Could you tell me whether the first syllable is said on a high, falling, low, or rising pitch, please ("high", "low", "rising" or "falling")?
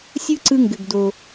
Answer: high